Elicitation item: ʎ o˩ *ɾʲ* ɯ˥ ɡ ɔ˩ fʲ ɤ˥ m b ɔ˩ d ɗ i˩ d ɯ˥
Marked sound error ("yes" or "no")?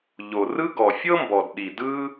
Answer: yes